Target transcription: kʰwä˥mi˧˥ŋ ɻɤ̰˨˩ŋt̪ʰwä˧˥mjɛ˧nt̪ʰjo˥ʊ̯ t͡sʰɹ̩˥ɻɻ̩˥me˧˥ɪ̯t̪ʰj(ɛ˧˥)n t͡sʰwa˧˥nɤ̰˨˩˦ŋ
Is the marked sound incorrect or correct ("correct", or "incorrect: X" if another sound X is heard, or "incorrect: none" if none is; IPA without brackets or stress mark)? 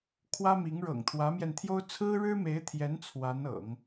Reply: correct